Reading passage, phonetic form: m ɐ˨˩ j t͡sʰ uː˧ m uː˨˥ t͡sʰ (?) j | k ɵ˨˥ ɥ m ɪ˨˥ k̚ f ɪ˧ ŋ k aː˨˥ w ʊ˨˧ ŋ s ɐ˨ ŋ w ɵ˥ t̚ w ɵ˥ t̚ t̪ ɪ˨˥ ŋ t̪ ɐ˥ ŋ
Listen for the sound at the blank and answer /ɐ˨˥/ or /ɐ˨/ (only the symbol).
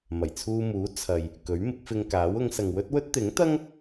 ɐ˨